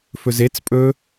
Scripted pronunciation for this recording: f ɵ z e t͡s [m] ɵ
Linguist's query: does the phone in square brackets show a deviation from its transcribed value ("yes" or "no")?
yes